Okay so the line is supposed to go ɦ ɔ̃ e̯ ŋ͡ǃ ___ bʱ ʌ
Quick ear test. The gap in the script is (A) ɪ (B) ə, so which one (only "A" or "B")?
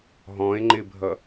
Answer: A